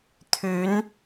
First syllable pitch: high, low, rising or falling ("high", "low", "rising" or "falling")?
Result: rising